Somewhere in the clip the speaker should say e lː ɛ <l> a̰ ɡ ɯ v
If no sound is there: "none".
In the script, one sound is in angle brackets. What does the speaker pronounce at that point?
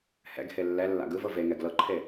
lː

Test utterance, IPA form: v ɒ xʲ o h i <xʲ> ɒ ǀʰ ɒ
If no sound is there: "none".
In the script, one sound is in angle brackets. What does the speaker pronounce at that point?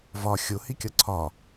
kʲ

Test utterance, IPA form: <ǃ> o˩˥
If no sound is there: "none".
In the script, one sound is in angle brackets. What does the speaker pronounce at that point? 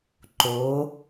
ǃ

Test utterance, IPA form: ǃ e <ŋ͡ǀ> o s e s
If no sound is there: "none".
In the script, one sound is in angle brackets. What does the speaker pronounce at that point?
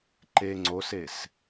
ŋ͡ǀ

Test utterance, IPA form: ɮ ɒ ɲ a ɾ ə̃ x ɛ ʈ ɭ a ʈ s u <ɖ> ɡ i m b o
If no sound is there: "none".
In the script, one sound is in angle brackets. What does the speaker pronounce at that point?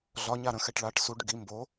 ɖ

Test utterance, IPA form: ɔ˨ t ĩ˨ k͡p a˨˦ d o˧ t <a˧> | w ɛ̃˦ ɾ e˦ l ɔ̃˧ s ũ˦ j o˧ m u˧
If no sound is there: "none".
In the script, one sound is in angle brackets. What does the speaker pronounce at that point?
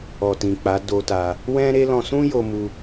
a˧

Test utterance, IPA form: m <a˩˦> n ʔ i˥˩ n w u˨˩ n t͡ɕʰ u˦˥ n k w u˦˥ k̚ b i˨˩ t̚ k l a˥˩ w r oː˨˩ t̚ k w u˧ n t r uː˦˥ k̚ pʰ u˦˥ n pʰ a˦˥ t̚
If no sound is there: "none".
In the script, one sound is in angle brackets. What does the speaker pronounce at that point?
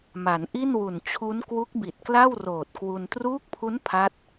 a˩˦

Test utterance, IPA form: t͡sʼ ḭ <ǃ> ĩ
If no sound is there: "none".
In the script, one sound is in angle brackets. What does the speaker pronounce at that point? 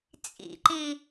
ǃ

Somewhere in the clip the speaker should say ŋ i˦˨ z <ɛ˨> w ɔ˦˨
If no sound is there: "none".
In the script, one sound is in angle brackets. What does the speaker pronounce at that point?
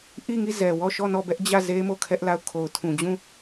ɛ˨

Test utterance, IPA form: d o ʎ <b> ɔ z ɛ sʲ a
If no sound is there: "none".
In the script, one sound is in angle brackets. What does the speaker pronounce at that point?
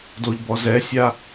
b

